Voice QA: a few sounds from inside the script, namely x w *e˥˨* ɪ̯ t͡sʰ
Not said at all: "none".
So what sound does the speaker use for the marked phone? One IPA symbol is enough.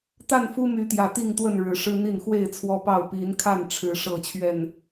e˥˨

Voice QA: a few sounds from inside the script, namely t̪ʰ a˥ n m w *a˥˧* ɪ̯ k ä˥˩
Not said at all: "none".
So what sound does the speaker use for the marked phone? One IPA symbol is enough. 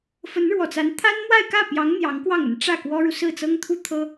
a˥˧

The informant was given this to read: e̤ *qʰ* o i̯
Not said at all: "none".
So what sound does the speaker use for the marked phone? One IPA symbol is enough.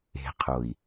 qʰ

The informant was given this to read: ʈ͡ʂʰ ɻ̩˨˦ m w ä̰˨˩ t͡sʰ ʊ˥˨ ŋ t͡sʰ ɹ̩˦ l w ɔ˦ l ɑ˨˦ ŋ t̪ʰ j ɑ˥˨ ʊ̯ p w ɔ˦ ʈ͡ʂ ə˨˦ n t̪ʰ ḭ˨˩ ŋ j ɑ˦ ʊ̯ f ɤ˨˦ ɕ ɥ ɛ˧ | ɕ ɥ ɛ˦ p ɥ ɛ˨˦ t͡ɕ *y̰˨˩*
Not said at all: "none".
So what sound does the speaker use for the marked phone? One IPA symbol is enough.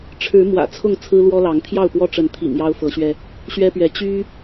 y˦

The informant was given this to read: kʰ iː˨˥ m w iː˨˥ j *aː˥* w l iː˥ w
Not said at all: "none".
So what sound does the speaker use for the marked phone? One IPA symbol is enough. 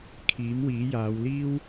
aː˨˧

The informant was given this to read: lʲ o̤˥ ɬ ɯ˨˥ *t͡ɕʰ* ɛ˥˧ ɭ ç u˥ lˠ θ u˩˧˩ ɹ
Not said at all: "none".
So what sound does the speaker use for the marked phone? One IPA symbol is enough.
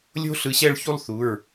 ɕ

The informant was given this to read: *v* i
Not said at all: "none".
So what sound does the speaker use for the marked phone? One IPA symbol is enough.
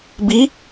b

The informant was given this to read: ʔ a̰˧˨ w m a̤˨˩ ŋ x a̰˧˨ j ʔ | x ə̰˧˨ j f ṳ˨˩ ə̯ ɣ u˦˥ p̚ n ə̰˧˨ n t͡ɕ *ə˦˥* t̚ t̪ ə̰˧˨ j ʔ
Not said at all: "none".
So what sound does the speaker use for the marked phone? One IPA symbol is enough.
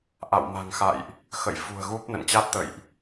a˦˥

